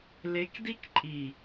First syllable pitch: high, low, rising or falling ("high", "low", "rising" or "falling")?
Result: rising